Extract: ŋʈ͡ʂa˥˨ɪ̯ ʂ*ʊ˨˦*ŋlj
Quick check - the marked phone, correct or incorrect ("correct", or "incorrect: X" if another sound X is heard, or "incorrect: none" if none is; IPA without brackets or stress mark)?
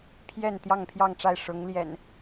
correct